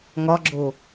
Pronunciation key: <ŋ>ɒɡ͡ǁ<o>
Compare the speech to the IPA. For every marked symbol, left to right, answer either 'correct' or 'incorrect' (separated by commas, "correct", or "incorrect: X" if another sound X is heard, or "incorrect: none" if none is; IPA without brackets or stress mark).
correct, correct